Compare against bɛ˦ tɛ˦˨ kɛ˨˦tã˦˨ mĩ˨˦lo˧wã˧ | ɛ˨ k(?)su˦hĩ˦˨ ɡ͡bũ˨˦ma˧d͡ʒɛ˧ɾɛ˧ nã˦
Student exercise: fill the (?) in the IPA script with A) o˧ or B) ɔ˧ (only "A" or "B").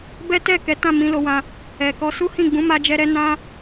B